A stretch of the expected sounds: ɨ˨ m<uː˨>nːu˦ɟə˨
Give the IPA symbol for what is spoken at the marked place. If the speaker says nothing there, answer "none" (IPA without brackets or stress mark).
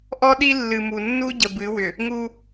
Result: u˨